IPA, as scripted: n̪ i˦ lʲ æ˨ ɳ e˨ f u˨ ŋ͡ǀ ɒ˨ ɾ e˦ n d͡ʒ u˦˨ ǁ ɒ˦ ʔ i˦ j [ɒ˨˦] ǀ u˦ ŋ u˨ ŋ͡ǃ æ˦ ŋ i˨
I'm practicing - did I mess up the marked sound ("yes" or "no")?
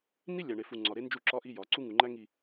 no